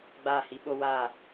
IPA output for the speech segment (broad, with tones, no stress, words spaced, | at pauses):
ɡ͡baː˦˨hi˦ɓo˦ waː˦˨